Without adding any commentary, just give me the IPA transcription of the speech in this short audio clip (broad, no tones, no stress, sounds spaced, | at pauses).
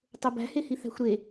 tˤ o b æ̤ h e h i θ æ̤ xʷ ɾ e